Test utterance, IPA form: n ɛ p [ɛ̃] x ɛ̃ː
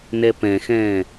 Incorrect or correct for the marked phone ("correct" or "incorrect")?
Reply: correct